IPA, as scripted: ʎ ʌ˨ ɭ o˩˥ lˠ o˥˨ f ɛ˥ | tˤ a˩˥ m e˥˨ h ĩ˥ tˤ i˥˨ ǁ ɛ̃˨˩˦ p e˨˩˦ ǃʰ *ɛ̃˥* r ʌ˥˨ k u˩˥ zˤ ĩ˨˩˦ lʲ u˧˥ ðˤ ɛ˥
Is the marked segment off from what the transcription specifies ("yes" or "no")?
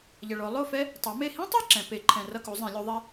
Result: yes